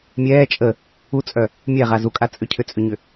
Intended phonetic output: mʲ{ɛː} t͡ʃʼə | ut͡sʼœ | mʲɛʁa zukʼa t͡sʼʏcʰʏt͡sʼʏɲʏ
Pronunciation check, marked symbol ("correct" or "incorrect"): correct